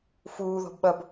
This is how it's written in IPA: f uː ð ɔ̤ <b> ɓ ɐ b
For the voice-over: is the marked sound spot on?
yes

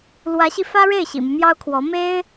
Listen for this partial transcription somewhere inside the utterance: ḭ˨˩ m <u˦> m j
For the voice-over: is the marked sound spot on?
yes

